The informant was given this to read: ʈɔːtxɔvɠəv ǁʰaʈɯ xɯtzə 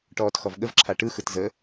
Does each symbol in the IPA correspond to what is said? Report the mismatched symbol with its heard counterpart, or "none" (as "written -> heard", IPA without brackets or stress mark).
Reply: none